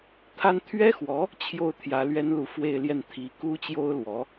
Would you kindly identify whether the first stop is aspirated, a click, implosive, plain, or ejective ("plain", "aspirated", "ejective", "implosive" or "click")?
aspirated